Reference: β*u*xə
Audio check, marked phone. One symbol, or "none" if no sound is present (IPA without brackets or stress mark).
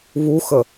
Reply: u